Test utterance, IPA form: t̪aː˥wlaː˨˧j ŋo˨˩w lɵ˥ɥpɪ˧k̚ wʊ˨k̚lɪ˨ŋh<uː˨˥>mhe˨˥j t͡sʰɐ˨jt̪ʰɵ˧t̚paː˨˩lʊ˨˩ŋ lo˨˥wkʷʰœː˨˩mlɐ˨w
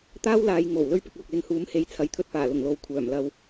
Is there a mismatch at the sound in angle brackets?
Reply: no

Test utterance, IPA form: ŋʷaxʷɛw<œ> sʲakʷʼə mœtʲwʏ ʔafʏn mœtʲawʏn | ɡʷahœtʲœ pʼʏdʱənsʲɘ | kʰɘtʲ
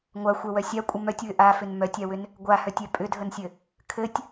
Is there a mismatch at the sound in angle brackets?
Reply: no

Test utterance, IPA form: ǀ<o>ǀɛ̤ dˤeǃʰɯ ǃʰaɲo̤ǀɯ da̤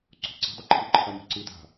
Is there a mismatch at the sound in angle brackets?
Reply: yes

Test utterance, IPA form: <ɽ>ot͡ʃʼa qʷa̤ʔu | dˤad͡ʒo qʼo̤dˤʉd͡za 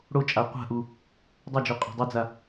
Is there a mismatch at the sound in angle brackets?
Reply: no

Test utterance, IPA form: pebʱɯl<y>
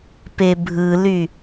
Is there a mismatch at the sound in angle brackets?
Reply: no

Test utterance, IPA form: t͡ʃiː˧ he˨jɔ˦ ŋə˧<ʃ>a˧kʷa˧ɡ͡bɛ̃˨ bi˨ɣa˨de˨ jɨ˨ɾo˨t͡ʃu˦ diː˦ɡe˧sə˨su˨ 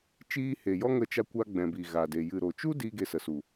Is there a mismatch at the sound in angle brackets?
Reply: yes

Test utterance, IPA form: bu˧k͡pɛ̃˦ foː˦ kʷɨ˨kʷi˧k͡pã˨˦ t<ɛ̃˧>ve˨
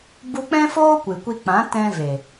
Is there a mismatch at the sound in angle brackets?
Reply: no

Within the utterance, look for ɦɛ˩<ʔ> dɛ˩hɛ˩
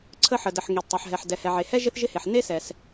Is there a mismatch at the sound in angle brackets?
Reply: yes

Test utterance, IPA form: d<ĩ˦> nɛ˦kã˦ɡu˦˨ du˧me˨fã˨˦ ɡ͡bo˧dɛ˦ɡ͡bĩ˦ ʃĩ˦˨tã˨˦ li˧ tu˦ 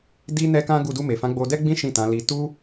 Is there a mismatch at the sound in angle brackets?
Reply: yes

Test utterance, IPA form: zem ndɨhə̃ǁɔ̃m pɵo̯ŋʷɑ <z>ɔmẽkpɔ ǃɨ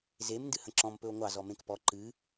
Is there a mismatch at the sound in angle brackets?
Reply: no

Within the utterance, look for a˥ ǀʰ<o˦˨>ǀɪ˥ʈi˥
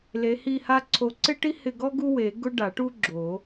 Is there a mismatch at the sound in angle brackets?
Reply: yes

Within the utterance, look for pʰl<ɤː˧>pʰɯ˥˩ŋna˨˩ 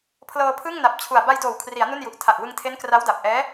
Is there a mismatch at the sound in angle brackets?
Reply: no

